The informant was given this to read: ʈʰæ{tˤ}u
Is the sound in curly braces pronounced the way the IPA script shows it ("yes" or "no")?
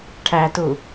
no